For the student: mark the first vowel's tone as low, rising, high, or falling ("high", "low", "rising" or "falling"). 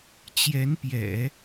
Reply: rising